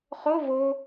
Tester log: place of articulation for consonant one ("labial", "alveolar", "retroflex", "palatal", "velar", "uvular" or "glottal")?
uvular